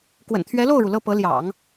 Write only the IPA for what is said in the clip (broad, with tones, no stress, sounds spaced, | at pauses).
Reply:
k w ə̰˨˩ n t̪ʰ ɥ ɛ˧˥ l o˥˩ ʊ̯ ɻ u˩ l ɤ˥˩ p ɤ˧˥ l j ɑ̰˨˩˦ ŋ